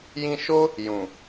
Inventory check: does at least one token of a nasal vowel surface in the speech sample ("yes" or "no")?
yes